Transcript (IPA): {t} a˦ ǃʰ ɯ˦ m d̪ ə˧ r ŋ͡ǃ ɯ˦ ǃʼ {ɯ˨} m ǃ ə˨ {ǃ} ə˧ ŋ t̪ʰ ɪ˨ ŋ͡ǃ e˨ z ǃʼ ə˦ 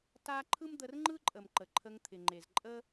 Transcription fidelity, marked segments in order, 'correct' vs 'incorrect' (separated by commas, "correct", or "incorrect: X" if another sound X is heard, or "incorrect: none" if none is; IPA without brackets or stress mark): correct, incorrect: ə˨, incorrect: ǃʰ